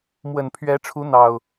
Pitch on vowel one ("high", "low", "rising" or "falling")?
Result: low